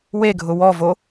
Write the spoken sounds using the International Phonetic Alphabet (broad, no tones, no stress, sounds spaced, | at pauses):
w e ɡʱ ʊ w ɔ v o